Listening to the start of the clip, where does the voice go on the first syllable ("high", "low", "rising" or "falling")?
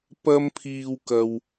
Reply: high